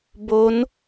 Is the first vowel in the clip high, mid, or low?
mid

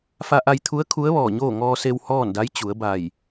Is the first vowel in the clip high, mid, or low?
low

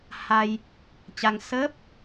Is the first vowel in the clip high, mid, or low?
low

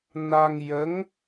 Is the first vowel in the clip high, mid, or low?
low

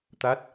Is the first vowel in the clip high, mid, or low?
low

